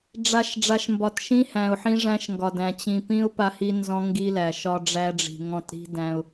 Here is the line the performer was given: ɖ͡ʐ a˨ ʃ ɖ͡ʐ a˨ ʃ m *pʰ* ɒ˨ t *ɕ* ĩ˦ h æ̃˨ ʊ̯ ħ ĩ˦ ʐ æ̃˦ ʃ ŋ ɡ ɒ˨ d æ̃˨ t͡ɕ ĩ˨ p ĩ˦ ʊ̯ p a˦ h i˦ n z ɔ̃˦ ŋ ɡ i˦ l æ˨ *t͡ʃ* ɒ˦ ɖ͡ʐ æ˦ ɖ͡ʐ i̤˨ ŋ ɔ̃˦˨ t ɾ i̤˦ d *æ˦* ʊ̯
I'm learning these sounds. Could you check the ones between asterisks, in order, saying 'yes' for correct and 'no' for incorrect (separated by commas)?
no, no, no, no